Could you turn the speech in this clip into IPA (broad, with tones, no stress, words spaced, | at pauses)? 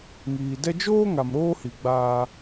ŋiː˨dɛ˦ d͡ʒoː˦ ŋa˨mɾoː˦hi˨ ɡ͡baː˦